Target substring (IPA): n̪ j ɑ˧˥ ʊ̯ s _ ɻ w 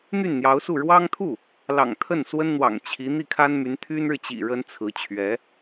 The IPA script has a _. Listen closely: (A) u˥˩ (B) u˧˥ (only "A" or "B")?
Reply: A